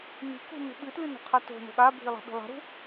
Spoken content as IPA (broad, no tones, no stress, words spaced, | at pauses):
ni̤kṳ nṳɓɨtlɨ no̤qʰato̤no̤ ɠabʱi lˠa̤ɓi̤lˠa̤ɾṳ